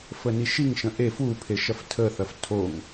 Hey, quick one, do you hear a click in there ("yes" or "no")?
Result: no